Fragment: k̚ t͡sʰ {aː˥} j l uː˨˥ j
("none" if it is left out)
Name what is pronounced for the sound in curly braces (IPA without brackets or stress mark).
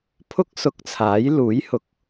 aː˨˥